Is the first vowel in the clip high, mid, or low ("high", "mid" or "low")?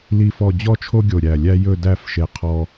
high